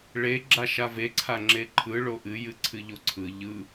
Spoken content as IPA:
ɭ e ɡ͡ǁ a ʃ a v e ǀʰ a ŋ͡ǁ e ǃʰ ɯ ɭ o ʔ ɨ j ɨ ǀʰ ɨ ʎ o ǀʰ ɯ ʎ ɯ

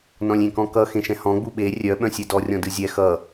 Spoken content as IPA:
n ɔ̃ lʲ ẽ k ɔ̃ k ʌ x ẽ ʃ ɛ̃ h ɔ̃ ɡ͡b u ɓ e rʲ œ ɓ œ̃ sʲ ɛ d ɔ rʲ ɔ̃ d ɨ zʲ ɛ x ʌ

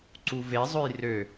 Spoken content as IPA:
ǀ u v e zˤ ø j r ø

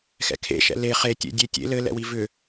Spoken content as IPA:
x ɛ̰ kʰ ḛ ʃ ɛ̰ l e χ e tʲ ḛ dʲ e tʲ ḛ l ɘ l ɛ̰ w i v ʏ

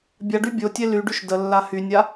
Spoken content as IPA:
bʲ a ɖ y bʲ o tʲ e l y ɖ y ʃ d ə lː a h y nʲ a

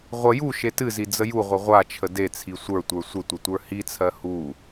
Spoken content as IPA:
ʁʷ ə j u ʃ e t ɨ z i d͡z ə j u ʁʷ ə ʁʷ a t͡ʃʰ ə d e t͡sʰ i sʷ ə˞ tʷ ə˞ sʷ ə tʷ ə tʷ ə˞ h i t͡sʰ ɜ h u

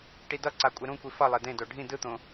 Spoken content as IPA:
ʈ i d ʌ ǀ a kʷʼ e ɾ ũ kʷ i f ʌ lˠ e d ẽ d o ɖʱ ĩ d ɯ t̪ õ

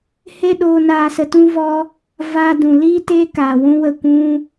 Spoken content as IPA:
h e˦ ɗ oː˧ n aː˧ s ə˧ t ũ˦ v ɔ˦ | v aː˧ d ũ˨ l iː˦ t eː˦ k aː˨ w ũ˦ w ə˦˨ kʷ ũ˦

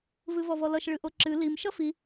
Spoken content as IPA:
v ɨ v ɔ v ɔ l ʌ ʃ ɭ ɨ ʔ o ǁ ɨ l i m ʃ ʌ f i

